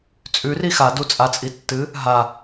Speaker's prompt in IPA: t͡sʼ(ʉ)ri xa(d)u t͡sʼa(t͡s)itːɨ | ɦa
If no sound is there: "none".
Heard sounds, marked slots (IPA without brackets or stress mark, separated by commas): ʉ, d, t͡sʼ